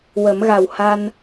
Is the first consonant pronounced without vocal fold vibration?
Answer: no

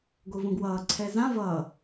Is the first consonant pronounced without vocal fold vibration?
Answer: no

